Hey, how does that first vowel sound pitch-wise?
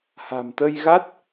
low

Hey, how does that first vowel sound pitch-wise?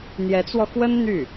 rising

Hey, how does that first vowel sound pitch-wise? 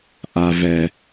low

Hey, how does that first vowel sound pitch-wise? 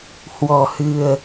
low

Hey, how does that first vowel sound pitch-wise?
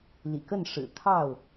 low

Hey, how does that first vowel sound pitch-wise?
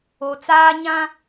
low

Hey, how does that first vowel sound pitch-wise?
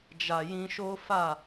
low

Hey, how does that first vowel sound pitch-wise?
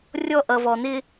high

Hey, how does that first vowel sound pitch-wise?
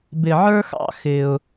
high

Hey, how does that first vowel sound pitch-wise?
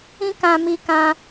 high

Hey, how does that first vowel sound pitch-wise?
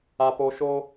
high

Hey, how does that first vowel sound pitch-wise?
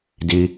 high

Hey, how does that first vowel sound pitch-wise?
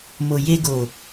low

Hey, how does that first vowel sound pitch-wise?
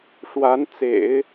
rising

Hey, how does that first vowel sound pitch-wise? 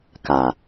low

